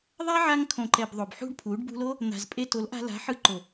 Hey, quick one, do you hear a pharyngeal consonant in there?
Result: yes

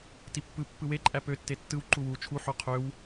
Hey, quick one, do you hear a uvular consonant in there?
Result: yes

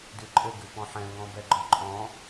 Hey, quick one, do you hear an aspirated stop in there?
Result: no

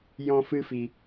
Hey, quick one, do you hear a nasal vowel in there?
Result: yes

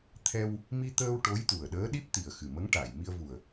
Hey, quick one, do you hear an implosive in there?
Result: yes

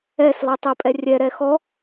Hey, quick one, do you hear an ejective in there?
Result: yes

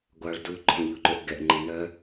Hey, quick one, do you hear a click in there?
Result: yes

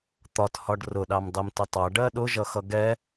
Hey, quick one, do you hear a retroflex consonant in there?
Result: yes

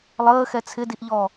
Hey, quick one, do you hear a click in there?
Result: no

